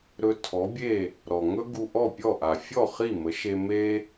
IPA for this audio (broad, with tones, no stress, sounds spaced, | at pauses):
ɾ ɵ˧ tʰ ɔ˩˥ bʲ e˥˩ | ɾ ɔ˩ ŋ ɵ˥ ɡ u˧ ʔ ɔ˥˩ pʲ ɔ˥˩ ʔ a˩ fʲ ɔ˥˩ χ i˥˩ m ə˩˥ ʃ e˧ m e˥